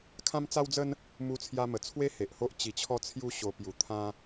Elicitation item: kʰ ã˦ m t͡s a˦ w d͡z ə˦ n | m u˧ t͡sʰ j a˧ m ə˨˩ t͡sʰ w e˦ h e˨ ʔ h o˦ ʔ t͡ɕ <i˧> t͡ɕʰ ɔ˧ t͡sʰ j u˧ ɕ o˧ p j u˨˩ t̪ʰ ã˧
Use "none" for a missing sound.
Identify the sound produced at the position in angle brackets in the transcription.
i˨˩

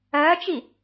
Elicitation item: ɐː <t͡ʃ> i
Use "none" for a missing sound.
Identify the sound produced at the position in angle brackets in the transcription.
t͡ʃ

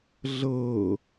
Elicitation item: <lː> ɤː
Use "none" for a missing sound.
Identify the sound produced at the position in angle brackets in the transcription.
ɮ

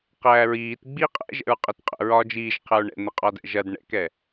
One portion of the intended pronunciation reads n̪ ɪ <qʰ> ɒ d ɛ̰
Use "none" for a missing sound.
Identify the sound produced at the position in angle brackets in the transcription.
qʼ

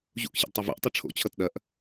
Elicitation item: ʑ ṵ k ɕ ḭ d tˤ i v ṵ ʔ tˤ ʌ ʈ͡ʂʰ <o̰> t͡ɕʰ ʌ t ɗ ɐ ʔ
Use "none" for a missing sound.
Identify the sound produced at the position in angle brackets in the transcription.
o̰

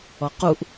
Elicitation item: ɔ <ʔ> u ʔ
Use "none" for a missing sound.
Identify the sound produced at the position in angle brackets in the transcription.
q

